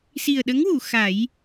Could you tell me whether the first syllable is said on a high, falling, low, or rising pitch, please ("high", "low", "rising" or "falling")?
low